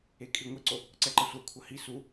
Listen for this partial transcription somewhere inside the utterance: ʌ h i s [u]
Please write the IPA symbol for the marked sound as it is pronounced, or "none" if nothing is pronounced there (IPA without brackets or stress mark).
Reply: u